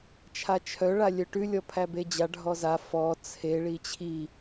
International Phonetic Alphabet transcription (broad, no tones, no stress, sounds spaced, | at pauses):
t͡ʃʰ a t͡ʃʰ œ ɭ a lʲ œ ʈ ʉ lʲ ɔ pʰ æ b e d͡ʑ a ɖʱ ɔ z a f ɔ t͡sʰ e ɭ i t͡ɕʰ i